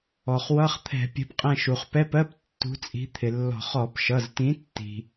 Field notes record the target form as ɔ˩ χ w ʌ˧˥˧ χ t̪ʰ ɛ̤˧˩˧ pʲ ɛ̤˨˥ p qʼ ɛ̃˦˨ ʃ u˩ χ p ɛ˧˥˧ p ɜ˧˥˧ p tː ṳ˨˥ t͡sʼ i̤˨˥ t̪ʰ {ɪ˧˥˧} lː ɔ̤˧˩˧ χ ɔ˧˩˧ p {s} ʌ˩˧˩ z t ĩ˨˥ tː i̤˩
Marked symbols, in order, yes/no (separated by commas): no, no